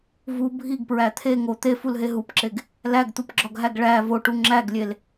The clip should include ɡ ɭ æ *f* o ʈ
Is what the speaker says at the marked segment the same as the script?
no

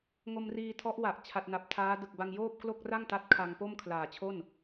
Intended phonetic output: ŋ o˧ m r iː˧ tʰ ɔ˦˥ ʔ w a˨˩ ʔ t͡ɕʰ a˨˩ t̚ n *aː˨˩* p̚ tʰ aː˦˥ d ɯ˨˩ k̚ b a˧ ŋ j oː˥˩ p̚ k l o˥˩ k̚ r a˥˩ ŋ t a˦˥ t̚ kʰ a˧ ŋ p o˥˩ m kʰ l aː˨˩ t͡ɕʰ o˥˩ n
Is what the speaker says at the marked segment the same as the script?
no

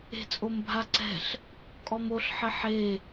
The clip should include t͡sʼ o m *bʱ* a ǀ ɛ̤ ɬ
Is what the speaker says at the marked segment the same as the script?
yes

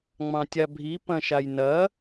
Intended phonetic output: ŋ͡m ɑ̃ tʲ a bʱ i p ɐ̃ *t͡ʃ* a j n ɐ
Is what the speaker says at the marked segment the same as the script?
no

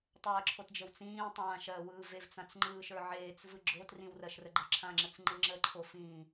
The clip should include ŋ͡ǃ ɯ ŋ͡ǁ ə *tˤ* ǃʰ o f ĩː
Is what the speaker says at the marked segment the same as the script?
no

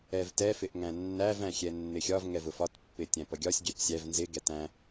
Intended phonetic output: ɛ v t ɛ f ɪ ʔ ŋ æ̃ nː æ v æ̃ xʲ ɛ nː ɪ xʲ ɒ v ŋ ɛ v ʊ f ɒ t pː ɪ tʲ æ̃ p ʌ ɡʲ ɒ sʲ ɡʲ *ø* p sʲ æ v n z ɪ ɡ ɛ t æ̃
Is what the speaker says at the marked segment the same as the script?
no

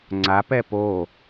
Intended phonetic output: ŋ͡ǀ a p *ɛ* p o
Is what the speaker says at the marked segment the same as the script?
yes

